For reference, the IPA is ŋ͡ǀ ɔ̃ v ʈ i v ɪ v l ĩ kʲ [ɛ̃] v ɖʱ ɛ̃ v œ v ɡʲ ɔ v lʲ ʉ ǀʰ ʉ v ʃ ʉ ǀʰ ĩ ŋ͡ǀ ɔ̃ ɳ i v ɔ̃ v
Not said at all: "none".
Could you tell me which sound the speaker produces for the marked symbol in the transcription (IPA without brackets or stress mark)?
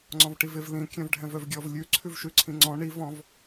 œ̃